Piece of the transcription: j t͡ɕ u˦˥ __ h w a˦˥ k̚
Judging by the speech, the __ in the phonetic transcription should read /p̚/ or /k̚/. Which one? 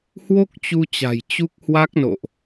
k̚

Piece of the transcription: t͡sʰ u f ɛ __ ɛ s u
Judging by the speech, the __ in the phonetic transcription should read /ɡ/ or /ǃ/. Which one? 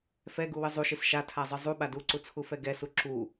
ɡ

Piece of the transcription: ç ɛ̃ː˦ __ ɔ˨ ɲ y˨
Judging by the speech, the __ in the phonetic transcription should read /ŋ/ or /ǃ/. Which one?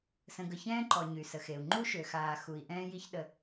ǃ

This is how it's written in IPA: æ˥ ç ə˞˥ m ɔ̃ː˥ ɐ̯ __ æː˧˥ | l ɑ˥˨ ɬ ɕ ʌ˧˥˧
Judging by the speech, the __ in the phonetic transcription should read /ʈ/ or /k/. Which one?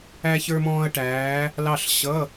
ʈ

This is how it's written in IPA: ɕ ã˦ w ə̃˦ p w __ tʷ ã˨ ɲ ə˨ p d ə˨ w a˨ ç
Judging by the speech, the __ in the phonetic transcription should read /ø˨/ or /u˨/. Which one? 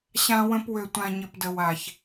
ø˨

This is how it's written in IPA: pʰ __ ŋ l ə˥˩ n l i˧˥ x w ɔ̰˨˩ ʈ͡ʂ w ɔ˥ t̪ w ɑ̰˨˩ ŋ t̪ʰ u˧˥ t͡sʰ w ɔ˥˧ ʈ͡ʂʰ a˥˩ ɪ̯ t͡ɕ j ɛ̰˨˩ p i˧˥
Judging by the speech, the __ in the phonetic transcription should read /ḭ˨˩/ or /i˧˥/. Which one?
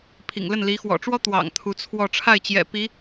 ḭ˨˩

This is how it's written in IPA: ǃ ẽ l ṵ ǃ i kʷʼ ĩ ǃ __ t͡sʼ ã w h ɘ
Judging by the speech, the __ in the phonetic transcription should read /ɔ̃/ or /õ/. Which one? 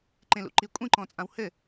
ɔ̃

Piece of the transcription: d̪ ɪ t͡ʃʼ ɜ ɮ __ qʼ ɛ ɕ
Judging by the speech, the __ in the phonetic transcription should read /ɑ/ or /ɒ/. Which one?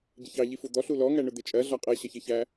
ɒ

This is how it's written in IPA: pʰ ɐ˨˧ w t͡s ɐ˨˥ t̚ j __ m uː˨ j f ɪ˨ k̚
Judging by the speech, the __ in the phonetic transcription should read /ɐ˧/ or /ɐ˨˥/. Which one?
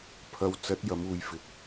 ɐ˨˥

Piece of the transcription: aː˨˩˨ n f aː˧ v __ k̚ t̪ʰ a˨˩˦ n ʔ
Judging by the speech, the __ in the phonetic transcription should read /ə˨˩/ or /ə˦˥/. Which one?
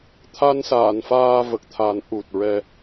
ə˨˩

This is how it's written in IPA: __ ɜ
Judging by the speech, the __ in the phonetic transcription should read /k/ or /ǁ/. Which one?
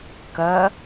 k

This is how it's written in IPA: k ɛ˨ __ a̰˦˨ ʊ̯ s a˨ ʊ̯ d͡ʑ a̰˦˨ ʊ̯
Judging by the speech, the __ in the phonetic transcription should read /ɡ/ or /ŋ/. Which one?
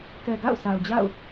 ɡ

